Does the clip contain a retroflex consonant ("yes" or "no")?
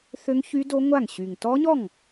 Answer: no